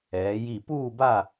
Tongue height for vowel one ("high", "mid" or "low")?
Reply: mid